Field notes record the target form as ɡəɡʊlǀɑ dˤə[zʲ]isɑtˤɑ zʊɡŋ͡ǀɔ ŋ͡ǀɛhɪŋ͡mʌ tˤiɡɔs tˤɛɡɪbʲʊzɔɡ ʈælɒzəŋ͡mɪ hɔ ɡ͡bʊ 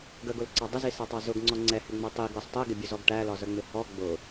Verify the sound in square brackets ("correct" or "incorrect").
incorrect